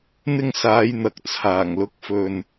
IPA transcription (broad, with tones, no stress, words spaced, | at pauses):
n̪ɪ˧ŋsaː˨˧j n̪ɐ˨k̚t͡sʰaː˨˩ŋ lʊ˨˥k̚fɵ˨n